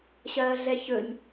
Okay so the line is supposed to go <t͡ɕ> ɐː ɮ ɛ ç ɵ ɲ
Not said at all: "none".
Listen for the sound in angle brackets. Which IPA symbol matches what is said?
ɕ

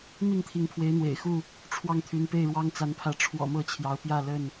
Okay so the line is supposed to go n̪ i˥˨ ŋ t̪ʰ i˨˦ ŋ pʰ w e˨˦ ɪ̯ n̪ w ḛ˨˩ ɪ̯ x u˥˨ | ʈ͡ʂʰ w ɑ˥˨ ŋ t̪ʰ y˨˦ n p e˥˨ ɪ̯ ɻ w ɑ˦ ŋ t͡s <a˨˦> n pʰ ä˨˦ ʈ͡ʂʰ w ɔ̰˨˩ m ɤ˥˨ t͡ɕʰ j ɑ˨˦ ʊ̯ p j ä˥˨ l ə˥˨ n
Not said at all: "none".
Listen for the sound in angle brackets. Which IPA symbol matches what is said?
a˨˦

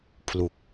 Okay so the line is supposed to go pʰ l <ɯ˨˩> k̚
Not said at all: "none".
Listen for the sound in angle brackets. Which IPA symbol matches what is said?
u˨˩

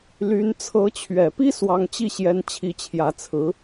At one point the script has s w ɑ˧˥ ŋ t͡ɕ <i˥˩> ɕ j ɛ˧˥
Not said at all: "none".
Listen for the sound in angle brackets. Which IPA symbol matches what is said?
i˥˩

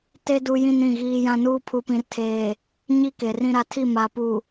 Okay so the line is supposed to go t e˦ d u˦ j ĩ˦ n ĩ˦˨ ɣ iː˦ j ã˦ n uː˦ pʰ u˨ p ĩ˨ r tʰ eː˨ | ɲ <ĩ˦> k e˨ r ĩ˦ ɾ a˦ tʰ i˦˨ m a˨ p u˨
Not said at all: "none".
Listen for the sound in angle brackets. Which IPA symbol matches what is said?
i˦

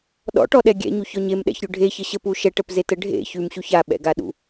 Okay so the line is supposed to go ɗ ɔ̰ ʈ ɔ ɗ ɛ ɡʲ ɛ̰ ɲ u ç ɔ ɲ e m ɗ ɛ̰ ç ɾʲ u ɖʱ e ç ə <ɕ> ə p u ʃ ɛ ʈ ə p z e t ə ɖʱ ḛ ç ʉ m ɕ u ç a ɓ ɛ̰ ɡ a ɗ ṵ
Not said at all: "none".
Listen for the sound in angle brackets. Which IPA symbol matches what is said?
ɕ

